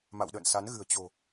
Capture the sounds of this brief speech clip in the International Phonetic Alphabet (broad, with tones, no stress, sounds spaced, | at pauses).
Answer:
m a̰˧˨ w ɗ ə̰ː˧˨ n s a˨˦ n ɣ ɨ̤˨˩ ə̯ t͡ɕ o̤˨˩